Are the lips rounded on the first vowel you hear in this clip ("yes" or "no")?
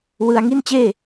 no